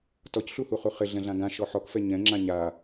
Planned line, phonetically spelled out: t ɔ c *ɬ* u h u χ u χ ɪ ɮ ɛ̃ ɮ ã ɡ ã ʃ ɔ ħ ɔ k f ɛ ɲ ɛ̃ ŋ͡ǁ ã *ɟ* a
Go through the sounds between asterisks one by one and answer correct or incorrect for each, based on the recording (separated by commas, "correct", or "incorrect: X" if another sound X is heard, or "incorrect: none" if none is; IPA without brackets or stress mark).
correct, incorrect: ɲ